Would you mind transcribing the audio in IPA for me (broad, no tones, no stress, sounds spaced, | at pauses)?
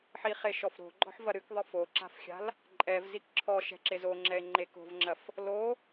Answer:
ħ i χ e ʃ ɔ f ɾ o̤ ɡ͡ǃ ɔ̤ ħ v ɐ ɾ ɨ k ðˤ ɨ f o ǁ a̤ f xʲ a̤ l | ǃʼ ɛ v z i k ǁʰ ɔ ʃ ɛ̤ ǁ e z o ŋ͡ǁ ɛ e̯ ŋ͡ǃ e k o̤ v ŋ͡ǁ ɐ f | l o